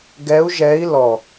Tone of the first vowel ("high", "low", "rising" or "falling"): rising